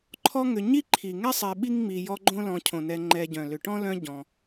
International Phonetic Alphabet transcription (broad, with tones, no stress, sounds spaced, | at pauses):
ǃʰ ɔ˦ ŋ ʏ˨ ɲ i˥ ǃʰ i˩ ŋ ɛ˥ sˤ ɛ˨ ɓ i˥ ŋ ŋ͡m i˨ j ɔ˦ ɡ͡ǃ õ˥ l ɔ̃˨ cʰ õ˩ n ɛ˨ ŋ͡ǃ ɛ˨ ɟ œ̃˩ l ʏ˨ ʈ ɔ̃˥ l œ̃˦ ɟ ɔ̃˩